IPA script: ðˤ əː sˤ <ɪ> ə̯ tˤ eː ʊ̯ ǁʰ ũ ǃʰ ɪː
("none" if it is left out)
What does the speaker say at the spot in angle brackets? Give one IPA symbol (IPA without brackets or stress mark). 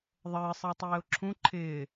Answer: ɪ